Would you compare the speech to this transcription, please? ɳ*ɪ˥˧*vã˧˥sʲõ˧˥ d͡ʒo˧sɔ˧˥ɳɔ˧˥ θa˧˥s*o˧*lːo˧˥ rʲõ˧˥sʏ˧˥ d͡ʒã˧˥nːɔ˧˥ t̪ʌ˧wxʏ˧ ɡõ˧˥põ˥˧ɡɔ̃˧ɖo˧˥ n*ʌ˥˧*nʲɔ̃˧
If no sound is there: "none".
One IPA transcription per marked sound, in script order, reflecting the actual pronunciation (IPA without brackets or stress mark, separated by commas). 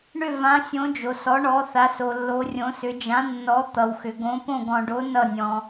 ʏ˥˧, o˧, ʌ˥˧